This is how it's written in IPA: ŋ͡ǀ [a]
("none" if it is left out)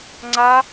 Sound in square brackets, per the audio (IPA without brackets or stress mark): a